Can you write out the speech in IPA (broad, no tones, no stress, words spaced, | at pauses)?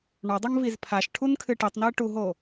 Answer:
ɳɔdˤɐŋviz pʰaʃʈʰunkʰɨ ʈitˤnɘːʈuɦo